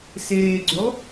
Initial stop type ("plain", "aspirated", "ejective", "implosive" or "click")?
click